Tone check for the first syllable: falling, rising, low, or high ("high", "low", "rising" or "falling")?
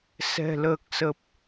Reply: low